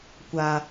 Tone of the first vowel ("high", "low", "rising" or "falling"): low